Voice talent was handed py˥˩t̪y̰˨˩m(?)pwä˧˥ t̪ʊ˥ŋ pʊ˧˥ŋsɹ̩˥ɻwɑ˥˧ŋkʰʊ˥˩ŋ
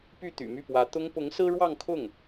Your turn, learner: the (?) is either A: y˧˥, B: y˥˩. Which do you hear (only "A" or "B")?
B